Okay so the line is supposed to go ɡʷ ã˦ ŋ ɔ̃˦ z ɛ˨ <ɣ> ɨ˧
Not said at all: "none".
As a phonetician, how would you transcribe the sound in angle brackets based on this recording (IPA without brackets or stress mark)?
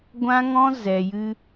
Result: j